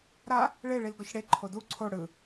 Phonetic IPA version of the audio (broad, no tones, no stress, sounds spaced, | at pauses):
ɾ a | ɭ e ɭ i l ɡ ɔ ç ɽ e ǃʰ o d u ǀʰ o ɽ ɯ